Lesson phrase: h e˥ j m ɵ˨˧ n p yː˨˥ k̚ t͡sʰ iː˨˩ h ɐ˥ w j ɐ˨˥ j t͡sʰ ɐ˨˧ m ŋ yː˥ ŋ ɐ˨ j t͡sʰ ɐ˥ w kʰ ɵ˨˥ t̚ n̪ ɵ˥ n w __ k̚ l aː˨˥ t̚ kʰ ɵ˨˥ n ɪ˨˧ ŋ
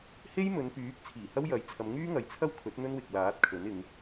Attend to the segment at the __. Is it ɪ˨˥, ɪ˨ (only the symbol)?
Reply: ɪ˨